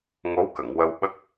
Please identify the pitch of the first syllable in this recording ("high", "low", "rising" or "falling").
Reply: rising